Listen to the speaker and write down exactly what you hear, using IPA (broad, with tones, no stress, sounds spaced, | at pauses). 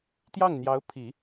t̪ j ɑ˥˩ ŋ n̪ j ɑ˧˥ ʊ̯ pʰ i˨˩˦